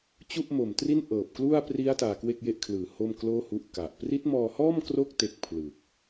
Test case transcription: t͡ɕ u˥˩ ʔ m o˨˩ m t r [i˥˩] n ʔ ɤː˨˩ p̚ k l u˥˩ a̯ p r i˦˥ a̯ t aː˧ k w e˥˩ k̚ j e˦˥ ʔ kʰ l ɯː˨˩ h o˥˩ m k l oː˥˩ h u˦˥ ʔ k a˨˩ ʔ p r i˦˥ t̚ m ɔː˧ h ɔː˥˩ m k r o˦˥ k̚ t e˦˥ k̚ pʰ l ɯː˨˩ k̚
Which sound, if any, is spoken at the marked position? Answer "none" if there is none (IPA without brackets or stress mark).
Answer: i˥˩